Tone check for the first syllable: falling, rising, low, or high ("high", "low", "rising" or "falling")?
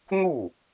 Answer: falling